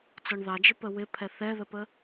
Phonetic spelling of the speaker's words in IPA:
t͡s ɔ ɳ ð ɑ d͡ʒ ɪ p ə w ɪ pʰ ɛ θ ɛ ð ə p ə

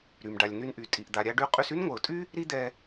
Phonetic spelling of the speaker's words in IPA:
ɾ y˩ m ɖ a˩ lʲ n y˧ n ʔ y˩ tʼ i˩ ʔ d̪ a˩ ɾʲ a˧ ɖ y˧ qʼ y˧ s y˥ n ŋʷ ɛ˩ ʊ̯ tʼ y˥ | ɾ i˥ d̪ ɛ˧

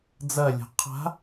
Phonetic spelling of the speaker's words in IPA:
d͡z ɐ lʲ a̤ qʰ a̤

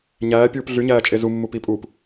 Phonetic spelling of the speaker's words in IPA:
ɲ æː pʲ uː p ɮ y ɲ æː t͡ʃʼ e z u mː u p i pʼ uː p

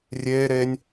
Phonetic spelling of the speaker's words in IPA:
rʲ eː ɾ eː nʲ

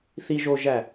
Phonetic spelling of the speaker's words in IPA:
θ i ʒ o ʒ æ

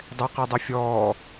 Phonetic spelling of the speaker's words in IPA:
dˤ ɛ q i dˤ ɨ fʲ ɔː

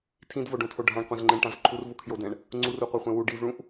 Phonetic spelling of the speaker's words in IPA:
tʰ ĩ d v o ɖ õ tʰ o ɖʱ ã ɳ qʷ ɛ̃ z ŋ͡ǃ ɛ̃ ɳ ʈ ã v ǃʰ u r v u kʰ j o d ɛ̃ ɳ | ŋ͡ǀ u r u qʷ a χʷ ɛ̃ w u ɖ i v ɭ ũ ʔ

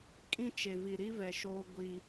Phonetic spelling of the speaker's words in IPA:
kʼ ĩ˦ t͡ʃ e˨ v i˨ ɾ i˦ v ɛ˨ ʃ oː˦ ɡʷ i˦

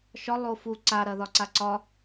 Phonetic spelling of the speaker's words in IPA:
ʃ ɒ lˠ o f u ǀ a ɾ ɐ ð ɒ ǀ a ǀ ɒ

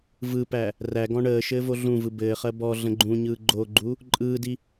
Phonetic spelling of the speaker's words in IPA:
v ɯ p æ | r æ ɡ ɔ̃ ɳ əː ʃ ɘː v o ɮ ũ v ɯ b ɘː χ ɜ b ɔ ɮ ə̃ ɡ͡ǃ ũ ɲ ɯː ɡ͡ǃ o ɡ͡ǃ u | ǃʼ ɯː d i

